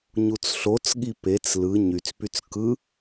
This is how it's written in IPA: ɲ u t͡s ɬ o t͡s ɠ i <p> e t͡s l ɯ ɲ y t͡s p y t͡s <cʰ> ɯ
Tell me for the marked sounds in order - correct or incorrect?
correct, incorrect

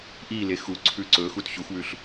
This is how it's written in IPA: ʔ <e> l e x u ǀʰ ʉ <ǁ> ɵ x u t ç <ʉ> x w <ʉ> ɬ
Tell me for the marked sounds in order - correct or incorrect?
incorrect, incorrect, incorrect, correct

